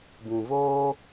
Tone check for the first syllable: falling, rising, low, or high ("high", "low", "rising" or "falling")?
low